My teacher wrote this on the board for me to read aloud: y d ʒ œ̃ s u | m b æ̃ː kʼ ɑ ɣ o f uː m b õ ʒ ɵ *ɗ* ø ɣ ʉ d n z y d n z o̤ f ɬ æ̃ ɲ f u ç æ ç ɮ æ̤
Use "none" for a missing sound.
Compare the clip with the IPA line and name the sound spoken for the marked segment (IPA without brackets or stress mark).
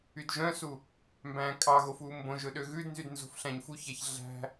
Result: ɗ